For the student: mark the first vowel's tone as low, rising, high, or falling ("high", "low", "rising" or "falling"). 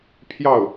falling